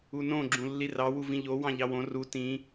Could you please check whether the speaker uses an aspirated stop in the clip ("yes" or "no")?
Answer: no